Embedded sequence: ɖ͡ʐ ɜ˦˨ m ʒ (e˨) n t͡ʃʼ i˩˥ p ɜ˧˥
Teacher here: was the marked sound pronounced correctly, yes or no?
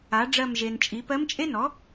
yes